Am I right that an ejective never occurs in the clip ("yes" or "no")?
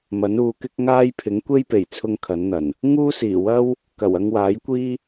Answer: yes